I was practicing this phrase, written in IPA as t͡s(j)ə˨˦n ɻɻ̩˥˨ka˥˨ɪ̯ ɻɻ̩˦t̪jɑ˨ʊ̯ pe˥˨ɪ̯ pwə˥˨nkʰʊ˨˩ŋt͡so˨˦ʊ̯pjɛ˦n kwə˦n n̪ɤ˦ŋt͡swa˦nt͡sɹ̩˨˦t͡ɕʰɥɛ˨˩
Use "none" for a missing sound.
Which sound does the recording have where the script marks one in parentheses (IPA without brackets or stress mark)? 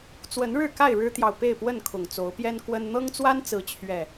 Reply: w